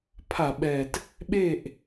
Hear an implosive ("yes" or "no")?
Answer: yes